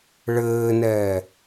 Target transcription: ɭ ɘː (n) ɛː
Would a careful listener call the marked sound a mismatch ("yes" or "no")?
no